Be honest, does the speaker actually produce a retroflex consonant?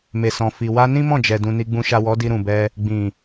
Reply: no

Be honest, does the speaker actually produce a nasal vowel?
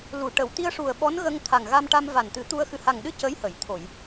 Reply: no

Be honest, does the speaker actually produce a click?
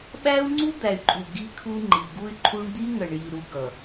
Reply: yes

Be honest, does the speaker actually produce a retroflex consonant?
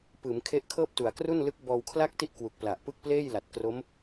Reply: no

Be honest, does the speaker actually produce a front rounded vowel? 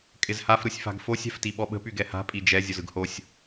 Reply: yes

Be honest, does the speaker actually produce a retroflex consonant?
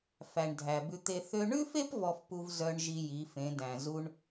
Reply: yes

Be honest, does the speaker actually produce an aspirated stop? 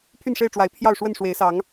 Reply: yes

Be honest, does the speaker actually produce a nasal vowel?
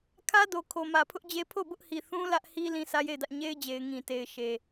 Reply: yes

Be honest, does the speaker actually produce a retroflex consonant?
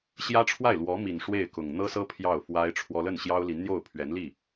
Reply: yes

